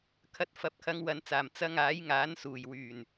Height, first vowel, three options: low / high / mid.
low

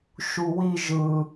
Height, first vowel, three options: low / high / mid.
high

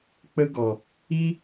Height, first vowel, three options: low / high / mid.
mid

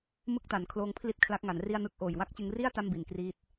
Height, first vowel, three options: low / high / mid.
high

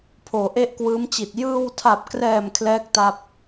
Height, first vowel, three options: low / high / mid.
mid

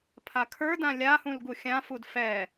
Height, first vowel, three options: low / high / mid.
low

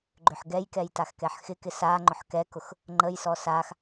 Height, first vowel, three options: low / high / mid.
high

